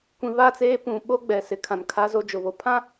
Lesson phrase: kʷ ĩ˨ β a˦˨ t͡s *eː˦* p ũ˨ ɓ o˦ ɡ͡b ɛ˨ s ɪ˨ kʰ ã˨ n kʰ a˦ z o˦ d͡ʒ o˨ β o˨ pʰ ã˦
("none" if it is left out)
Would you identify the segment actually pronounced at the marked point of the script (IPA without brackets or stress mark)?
eː˦